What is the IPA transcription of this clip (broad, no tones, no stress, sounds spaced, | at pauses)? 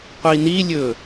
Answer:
qʷ i n i lʲ ɵ